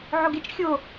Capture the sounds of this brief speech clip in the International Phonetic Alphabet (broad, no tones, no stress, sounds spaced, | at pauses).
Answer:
ʕ o ɡ e t͡ʃ xʲ o